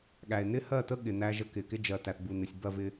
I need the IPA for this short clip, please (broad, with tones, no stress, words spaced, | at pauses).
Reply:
ɠæ˨e̯ nɪ˦hɜ˦˨tə˦ ɠɪ˨ næ˦ʒə˦ kɪ˨kɪ˦d͡ʒɜ˨ tæ˨θbu˨nɪ˨sʲ bɜ˦˨vɪ˦